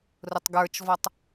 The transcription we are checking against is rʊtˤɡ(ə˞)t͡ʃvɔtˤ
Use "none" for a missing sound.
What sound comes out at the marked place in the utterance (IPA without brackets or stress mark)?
ə˞